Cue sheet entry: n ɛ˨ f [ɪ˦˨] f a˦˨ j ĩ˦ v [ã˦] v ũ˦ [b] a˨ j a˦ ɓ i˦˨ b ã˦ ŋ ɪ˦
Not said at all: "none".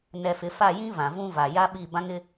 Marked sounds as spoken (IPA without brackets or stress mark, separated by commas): ɪ˨, ã˨, v